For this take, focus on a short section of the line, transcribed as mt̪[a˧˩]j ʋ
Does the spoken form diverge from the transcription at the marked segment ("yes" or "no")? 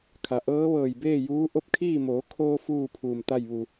yes